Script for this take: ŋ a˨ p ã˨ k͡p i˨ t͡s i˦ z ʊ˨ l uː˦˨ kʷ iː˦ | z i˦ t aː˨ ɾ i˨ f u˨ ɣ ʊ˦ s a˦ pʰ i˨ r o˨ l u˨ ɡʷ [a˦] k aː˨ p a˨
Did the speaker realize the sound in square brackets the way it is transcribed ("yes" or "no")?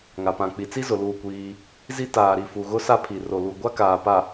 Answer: yes